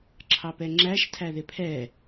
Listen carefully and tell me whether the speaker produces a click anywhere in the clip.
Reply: yes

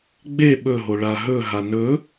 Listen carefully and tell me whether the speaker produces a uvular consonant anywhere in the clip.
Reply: no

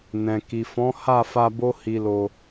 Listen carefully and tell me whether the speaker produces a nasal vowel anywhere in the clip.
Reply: yes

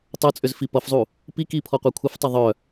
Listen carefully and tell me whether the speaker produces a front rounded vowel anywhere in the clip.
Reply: yes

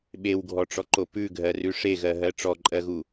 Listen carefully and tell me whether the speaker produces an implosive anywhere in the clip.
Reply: yes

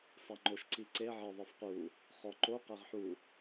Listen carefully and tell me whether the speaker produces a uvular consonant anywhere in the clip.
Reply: yes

